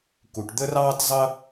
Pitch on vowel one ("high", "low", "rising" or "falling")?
low